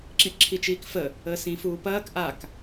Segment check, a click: present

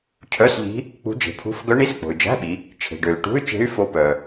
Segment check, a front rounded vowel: present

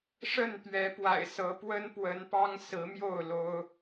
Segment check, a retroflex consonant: present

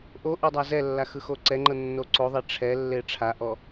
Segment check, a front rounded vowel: absent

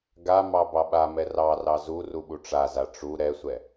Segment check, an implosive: present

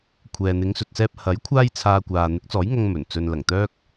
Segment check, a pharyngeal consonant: absent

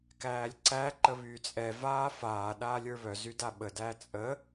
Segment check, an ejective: present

